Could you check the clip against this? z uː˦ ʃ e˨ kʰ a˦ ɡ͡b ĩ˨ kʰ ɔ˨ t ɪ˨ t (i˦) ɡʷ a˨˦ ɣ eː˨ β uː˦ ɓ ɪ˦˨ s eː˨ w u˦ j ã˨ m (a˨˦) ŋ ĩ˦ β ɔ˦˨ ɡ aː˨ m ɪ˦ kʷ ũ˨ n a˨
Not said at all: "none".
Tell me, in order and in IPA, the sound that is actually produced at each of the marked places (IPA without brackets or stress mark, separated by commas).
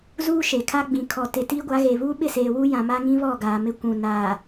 iː˦, a˦